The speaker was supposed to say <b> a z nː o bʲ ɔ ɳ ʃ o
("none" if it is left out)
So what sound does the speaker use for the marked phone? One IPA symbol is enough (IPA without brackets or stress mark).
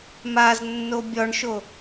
m